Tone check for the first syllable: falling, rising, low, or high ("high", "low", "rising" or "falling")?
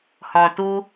low